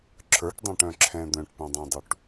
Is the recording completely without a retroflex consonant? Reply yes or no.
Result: no